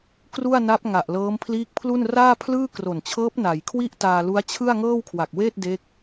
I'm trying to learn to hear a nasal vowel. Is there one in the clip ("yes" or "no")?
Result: no